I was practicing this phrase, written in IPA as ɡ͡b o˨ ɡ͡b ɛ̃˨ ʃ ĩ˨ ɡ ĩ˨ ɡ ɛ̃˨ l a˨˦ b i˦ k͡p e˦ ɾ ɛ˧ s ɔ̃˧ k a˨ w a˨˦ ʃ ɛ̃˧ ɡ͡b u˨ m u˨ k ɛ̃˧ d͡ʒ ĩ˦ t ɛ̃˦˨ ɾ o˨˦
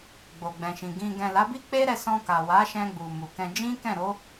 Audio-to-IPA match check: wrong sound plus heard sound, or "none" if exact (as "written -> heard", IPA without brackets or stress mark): t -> k